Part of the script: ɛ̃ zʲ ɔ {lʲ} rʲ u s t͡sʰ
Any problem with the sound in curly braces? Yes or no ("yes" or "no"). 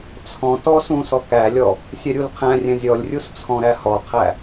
no